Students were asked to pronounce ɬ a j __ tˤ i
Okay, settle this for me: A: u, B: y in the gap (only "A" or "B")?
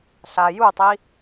A